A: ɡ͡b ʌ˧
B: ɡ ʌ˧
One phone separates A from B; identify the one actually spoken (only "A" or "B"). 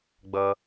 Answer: A